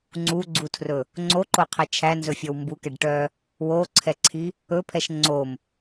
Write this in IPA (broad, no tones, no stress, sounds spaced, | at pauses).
ŋ͡ǀ u ɡ͡ǀ u tʰ r ɵ | ŋ͡ǀ o ǃ o qʰ ɛ t͡ʃʰ æ n z ɵ fʲ ɔ w m b u k ɛ ɖ ʈ œ | w o ǀʰ ɛ ǀʰ i | ɵ pʰ ɛ ʃ ŋ͡ǀ o m